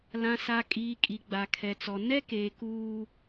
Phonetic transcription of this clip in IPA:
l ã˨ s a˨ kʼ iː˨ kʼ i˨ ɡ͡b a˨ kʰ ɛ˨ t͡s ɔ˨ n ɛ˦ k eː˨ k uː˦

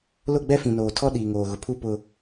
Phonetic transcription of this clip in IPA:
l ʊ˦˨ ɡ͡b ɛ˦ f ĩ˨ n oː˨ tʰ ɔ˦ ɗ iː˨ ŋ oː˨ ɣ ʊ˨ pʰ u˦˨ p ʊ˨

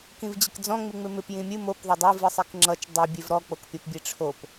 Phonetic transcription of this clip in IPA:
k ĩ v d͡ʑ ɪ k d͡z ɔ̃ ŋ͡m ɨ ŋ͡m ɪ m ɪ p j ĩ mʲ ɨ m o p ðˤ o dˤ e v ɨ sˤ i k ŋ͡ǁ ʌ t͡ʃ dˤ i bʲ e v ɾ ɔ k͡p o k pʲ ʌ p bʲ e ʈ͡ʂʰ o p

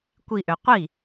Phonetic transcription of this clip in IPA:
kʷ i ʔ ø qʷ i

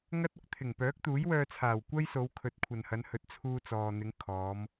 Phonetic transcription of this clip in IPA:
ŋ ɐ˥ t̚ ʊ˧ k̚ t̪ʰ ɪ˨˩ ŋ p œː˨˥ k̚ t̪ uː˨˥ j w œː˧ t͡sʰ aː˨˩ w kʷ ɐ˥ j s o˨˧ w kʰ ɵ˨˥ t̚ kʷʰ ɐ˨ n h ɐ˨˧ n h ɵ˨˥ t̚ t͡sʰ uː˧ t͡s ɔː˨ n̪ ɪ˨˧ ŋ kʰ ɔː˨˧ m

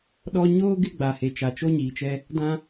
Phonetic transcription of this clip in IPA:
ɗ ɔ˦ ɲ oː˦ ɡ ɪ˦ ɡ͡b a˨ h e˨ t͡ʃ a˨ t͡ʃ o˦ ɲ iː˨ t͡ʃ ɛ˦ | d ã˦

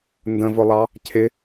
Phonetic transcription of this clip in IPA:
n d ə̃ v ʊ lˠ ɑ | cʰ ɪ

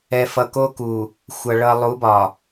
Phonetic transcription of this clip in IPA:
ɛ˨ f ʌ˨ k o˦ k u˨ | xʷ ʌ˨ ɭ ʌ˨ lˠ u˨˦ b ɒ˨

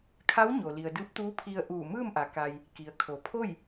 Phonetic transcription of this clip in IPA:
kʰ a˧˥ w ɲ o˩ l i˩ ə̯ d ɯː˧˥ p̚ t̪ uː˧˥ pʰ i˧ ə̯ ʔ uː˧˩ m ɯː˥˨ m ʔ a˩ k a˧ j | k i˩ ə̯ kʰ o˩˧ pʰ o˥˨ j

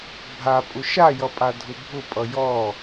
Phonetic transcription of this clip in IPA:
bʱ a pʼ ʊ ʃ a j ʌ pʼ a dʱ ʊ bʱ ʊ pʼ ʌ j ɔ

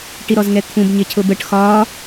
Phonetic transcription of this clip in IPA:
ʈ i ɾ ɔ z ŋ ɛ t̪ʰ ũ b ɲ ɪ cʰ ʊ b ə ʈ x ɒ

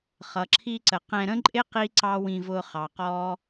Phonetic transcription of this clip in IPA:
χ ʌ˨ ǁʰ i˧ ǀ ə˨ q ɛ̃˧ ɾ ə̃˦ ǃʼ ɪ˦ q i˦ ǀ ɑ˦ w ĩ˧ v ʊː˧ χ ɑ˨ q ɔː˦

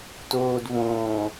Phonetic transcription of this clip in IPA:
t oː d v õː

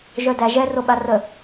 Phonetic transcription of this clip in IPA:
ʒ œ d æ ʒ ɛ r o ɓ a r ə

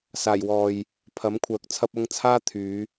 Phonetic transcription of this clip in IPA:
s aː˨˩ j w ɔː˨ j | pʰ ɐ˨˥ m kʷʰ œː˨ k̚ t͡sʰ ɐ˥ p̚ ɐ˥ ŋ t͡sʰ aː˥ t̪ʰ yː˨˧

